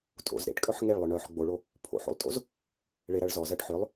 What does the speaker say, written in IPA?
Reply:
tʼo̰z ɾḛʈkʼœħ ŋeɭ lˠœɳœħ ɡ͡boɭo | pʰo̰ħo̰lˠtʼo̰z | ɭeɾɐɭ zɔzɜʈ ħʏlˠ

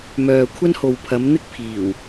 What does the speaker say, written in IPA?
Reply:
mœː˨kʷʰɐ˥n ho˨wpʰɐ˨˧m n̪ɪ˥k̚ pʰiː˨˩w

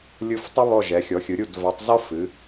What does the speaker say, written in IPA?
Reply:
lʲɯ˦˨f tˤɨ˥βɔ˦˨ ʒɛ˨˦xʲɔ˨˦xʲɯ˨˦ɾʲu˦˨d va˨˦tˤzɔ˥ fɨ˨˦

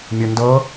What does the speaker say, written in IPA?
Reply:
mʲɤndɤ

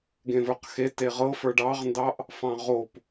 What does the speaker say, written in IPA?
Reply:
ɡẽvə˞qxe teʁɤfə˞ ɖɑʁndɑʔ | fɑ̃ʁop

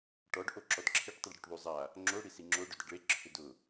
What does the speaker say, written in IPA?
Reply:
ʈɔɖ ʔoǁɔdǁʰeʈ tˤyɖɽyʈðˤy zˤa | ŋ͡ǁo ɽisiŋ͡ǁo ɖʏdəɖɭe ǁʰʏdʊ

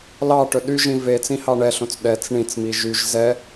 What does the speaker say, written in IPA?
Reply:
lɑʈɵ ɗyʒĩ ve t͡sĩhɑɳɛɬõt͡s ɗɛt͡s ɳĩt͡smi ʒyʒ zɛ

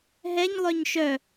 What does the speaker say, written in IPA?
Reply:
ɦɛɲlˠœɲ ʃœ

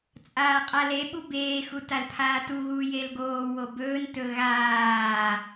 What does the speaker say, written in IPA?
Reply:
t͡sʼaːqʼaleɓu beːxu talpʰaːtuɣuː jelɡoːwo bɵːntɵ ɣaː

